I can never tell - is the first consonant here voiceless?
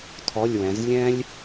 yes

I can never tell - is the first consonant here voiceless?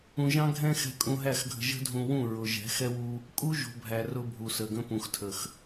no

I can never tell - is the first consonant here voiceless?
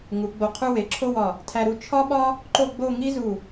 no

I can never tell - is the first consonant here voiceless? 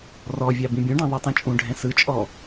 no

